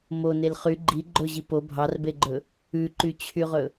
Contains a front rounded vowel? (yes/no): yes